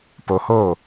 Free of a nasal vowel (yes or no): yes